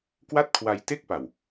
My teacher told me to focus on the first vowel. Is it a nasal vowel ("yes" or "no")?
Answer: no